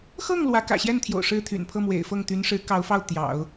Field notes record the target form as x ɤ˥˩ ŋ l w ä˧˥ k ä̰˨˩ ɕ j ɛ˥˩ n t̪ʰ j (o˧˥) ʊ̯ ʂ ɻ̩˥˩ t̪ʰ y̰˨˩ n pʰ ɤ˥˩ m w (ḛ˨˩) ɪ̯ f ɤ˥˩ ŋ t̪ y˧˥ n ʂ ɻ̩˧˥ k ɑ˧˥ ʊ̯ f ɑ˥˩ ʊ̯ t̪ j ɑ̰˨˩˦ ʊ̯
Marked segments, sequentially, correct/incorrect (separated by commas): incorrect, correct